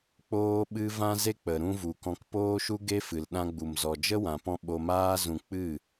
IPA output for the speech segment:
k͡p oː˦ ɓ ɨ˦ v ã˧ z e˧ k͡p ə˨ ɾ ũ˧ v u˨ k ɔ̃˧ k p oː˦ ʃ u˦ ɡ e˦ f ɨ˨ l ɗ ã˧ ɡ͡b u˨ m z ɔ˨ d͡ʒ ə˦ w ã˨ p ɔ̃˧ ɓ o˧ m aː˦ z ũ˧ k͡p ɨ˦˨

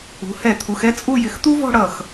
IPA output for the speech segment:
ṳ˩˧ h ɛ˧˩ t̪ʰ u˩˧ x ɛ˥ t͡sʼ u˥˧ j ɪ˧˩ x t̪ u˥ v ɔ̤˥˧ ɽ ʌ˧˩ x

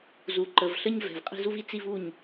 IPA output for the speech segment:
z u˨ ǃ ə˨ v ɬ ə˦ ɲ v ɛ̤˨ v qʼ i̤˧ z u˦ v i˦ t͡s i˦ v u˦˨ ɲ

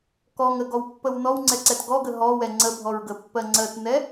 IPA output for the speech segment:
k ɔ ŋ ə ɡ ɔ w pː ə w n ɔ w ŋ͡ǀ ɛ ǀ ɛ t ɡ ɔ ɡ ə ɦ ɔ w ɛ ŋ͡ǀ ə bʱ ɔ ɹ ɡ ə pː ɜ ŋ͡ǀ ɜ t n ɛ

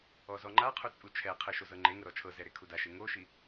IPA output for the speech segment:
ɔ z ɔ ŋ͡ǃ a qʰ u t͡sʼ u t͡ʃʰ ɛ qʰ ɯ ʃ o z ɤ ŋ͡ǃ e ŋ ɤ ɾ ɔ t͡ʃʰ ɤ z ɛ ɾ e kʰ u d a ʃ e ŋ o ʃ i

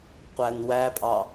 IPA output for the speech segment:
qʷ æ n w æ pʼ ɑ

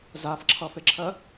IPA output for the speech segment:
z a f ǁʰ ʌ f e ǁʰ ɜ

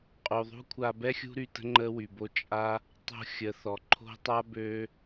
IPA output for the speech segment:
qʼ u˨ ðˤ ṳ˦ kʷʰ a˧ b ɛ˦ xʲ ṳ˦ ɾ y˧ t ə̤˦ ŋ͡ǃ ə˦ w y˨ b o˦ t͡ʃʼ a˦ | tˤ o̤˧ xʲ ə˨ θ ɔ˨ ǃʰ o̤˦ tˤ a˦ b ø˦

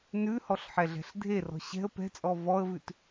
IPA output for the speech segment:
n ʉ h ɔ ɬ ħ ɛ ɮ ɛ̤ ɬ dʱ e r ɔ̤ ɕ ɛ̤ ə̯ p ɛ̤ t͡sʼ ɔ v ɔ ə̯ v ʉ t

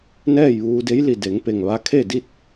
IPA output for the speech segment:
n ɛː˥˨ j ʋ uː˧ d e˧˥ j l i˧˩ d e˩˧ ŋ p e˧˩ ŋ ʋ a˧ kʰ e˥˨ d i˥˨ t̚

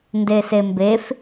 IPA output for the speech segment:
n d e s e m b e f

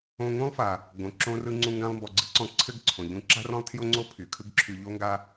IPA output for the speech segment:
õ˧ ŋ ũ˥ lˠ f a˩ | ɡ õ˩ ǁ õ˧ r ɯ˧ ŋ͡ǀ ũ˧ ŋ ɡ ã˧ lˠ m b ɔ˩ ɡ͡ǀ ɯ˥ ǀ ɔ̃˧ ǀʰ ɘ˥ ɡ ǀʰ õ˩ ʎ ũ˧ ǁ a̤˥ r ɔ̃˥ lˠ tʰ j o˥ ŋ͡ǀ o˥ pʰ y˩ kʰ ɯ˥ ɡ ǁʰ y˧ ʎ o˥ ŋ ɡ a˥

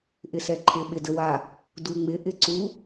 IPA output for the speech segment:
ʔ ɪ s ɛ ǃʰ ɪ ɓ ɪ d ə w a | d u ŋ͡m ɪ ʔ ɪ ǀ u

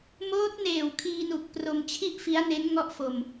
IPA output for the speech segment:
m oː˦˥ t̚ n eː˨˩ w kʰ iː˧ n u˨˩ k̚ p r o˧ m t͡ɕʰ i˥˩ ʔ f i˦˥ a̯ n e˦˥ n ŋ ɔ˥˩ ʔ f o˧ m

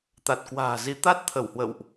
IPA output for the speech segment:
t̪ a˨˩ t̚ k w a̤ː˨˩ z i˨˦ t̪ a˦˥ t̚ t̪ʰ ə˧˩ w h w ə̰˧˨ w ʔ

